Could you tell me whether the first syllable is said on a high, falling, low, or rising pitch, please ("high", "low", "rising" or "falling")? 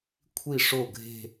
falling